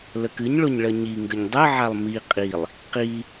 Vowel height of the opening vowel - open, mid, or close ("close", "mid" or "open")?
mid